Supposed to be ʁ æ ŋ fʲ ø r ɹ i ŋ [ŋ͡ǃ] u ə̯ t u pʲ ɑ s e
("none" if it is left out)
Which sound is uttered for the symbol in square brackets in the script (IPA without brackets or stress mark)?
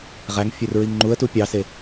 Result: ŋ͡ǃ